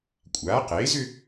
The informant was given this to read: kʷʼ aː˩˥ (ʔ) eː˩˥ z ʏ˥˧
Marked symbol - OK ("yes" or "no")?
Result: no